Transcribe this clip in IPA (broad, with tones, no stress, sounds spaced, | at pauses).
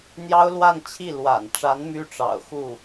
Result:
n̪ j ɑ˥ ʊ̯ l w a˥˧ n t͡ɕʰ i˥˩ l w a̰˨˩ n ʈ͡ʂ a˧˥ n m y˥ ʈ͡ʂ ɑ̰˨˩ ʊ̯ x u˥˩